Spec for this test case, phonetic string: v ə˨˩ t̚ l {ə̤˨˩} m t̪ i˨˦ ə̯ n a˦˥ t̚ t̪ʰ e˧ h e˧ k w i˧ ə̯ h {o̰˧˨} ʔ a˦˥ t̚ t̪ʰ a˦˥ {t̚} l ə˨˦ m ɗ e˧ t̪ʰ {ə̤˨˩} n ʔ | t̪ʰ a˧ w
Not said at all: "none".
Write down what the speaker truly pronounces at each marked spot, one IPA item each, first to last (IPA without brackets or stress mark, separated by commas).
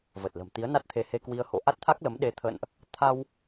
ə̤˨˩, o̰˧˨, k̚, ə̰˧˨